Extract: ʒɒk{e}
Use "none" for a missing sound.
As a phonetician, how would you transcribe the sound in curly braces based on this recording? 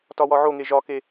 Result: e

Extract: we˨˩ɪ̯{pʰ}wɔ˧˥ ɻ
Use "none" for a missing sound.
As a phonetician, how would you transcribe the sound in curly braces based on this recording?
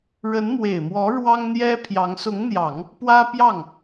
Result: m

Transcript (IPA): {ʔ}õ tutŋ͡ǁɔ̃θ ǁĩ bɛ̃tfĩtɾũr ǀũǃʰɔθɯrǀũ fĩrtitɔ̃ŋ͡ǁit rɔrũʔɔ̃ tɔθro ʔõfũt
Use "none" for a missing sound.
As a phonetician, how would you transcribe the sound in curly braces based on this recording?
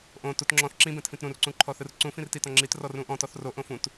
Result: ʔ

